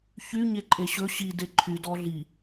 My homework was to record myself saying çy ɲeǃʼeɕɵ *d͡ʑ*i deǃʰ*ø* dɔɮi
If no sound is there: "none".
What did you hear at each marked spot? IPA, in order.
ɕ, y

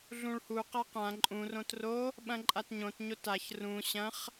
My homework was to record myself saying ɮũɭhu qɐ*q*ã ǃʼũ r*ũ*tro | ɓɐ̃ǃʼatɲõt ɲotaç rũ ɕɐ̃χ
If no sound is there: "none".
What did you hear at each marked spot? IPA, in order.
q, õ

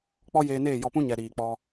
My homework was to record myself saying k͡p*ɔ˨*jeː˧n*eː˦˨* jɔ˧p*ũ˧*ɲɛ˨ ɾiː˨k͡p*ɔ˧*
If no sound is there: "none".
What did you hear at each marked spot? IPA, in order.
ɔ˦, eː˦˨, ũ˦, ɔ˧

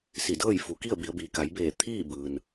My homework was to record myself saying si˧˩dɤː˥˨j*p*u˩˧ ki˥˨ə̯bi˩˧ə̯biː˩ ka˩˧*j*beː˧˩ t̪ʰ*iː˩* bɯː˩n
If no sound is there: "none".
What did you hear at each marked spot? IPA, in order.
f, j, iː˥˨

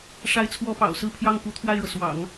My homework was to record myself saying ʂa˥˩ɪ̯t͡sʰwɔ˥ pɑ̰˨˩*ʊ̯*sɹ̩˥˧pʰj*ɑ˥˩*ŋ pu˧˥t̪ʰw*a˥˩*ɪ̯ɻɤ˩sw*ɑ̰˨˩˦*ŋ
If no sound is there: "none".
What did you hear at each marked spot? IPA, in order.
ʊ̯, ɑ˥˩, a˥˩, ɑ̰˨˩˦

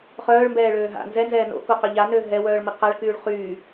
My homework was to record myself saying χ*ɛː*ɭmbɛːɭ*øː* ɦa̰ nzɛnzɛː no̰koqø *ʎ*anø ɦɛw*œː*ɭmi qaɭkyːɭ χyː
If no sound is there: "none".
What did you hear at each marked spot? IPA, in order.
œː, øː, ʎ, œː

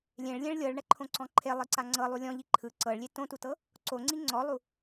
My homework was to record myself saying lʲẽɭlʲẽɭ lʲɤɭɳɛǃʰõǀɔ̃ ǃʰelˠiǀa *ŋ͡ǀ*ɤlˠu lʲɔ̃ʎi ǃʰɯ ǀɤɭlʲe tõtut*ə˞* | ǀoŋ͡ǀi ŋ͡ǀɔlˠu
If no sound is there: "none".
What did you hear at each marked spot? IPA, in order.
ŋ͡ǀ, ɤ

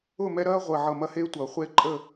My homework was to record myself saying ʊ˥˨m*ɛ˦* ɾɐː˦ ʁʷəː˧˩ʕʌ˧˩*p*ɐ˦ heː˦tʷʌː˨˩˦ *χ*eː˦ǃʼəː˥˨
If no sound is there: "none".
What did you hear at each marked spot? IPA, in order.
ɛ˦, m, χʷ

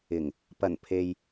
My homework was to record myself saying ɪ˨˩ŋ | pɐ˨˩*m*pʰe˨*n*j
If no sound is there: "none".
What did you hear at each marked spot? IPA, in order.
n, none

